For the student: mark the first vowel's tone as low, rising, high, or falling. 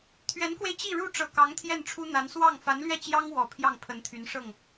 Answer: rising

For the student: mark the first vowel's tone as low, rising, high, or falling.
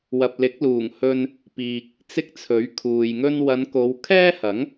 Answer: low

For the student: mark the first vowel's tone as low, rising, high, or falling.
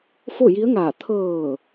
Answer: falling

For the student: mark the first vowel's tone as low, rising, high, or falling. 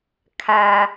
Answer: low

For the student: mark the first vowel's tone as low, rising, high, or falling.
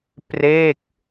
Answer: falling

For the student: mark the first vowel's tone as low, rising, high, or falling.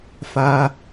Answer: high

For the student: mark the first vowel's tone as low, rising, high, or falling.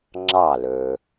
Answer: falling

